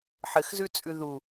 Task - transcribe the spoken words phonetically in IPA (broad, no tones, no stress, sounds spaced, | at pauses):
ħ ɘ x z ʉ t͡sʼ ʉ ð u